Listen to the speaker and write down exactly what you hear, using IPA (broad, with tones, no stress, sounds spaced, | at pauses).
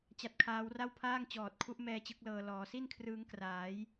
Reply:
t͡ɕ a˦˥ t̚ kʰ aː˦˥ w r a˥˩ w pʰ aː˥˩ ŋ t͡ɕ ɔː˨˩ t̚ kʰ u˦˥ ʔ m ɛː˧ t͡ɕ ɯ˦˥ k̚ l ɤː˧ l ɔː˩˦ s i˥˩ n kʰ r ɯː˦˥ ŋ k r aː˩˦ j